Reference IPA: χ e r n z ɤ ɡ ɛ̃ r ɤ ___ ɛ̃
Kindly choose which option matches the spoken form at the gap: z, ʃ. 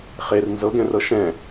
ʃ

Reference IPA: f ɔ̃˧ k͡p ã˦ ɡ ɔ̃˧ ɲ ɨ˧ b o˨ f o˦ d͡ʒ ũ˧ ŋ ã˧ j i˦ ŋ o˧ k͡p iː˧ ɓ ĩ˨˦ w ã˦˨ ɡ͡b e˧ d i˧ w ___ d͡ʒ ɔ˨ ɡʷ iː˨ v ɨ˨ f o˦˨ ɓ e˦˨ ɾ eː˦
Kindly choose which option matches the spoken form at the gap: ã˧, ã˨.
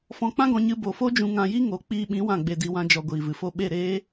ã˧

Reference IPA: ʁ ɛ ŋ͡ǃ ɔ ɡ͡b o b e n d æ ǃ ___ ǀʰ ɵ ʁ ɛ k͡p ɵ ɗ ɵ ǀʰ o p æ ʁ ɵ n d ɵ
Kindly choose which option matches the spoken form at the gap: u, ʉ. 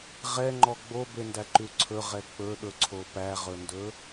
ʉ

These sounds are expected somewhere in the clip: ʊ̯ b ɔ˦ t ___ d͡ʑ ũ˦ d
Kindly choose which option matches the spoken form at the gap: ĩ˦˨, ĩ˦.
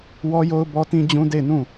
ĩ˦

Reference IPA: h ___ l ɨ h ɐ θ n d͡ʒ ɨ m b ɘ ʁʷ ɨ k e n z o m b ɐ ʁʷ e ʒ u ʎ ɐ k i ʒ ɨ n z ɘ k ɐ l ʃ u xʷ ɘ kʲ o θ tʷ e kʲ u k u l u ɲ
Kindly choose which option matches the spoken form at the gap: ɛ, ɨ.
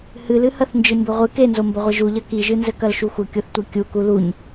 ɨ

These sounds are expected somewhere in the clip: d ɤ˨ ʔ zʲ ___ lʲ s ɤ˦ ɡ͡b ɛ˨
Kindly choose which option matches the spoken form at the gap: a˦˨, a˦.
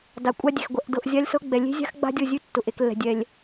a˦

